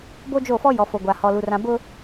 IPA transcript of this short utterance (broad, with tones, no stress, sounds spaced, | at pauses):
b o˦ d͡ʒ o˦˨ f ɔ˦ j ɔ˨ f o˨ ɡʷ a˨ h ɔ˨ l u˨ r ã˨ b ʊ˦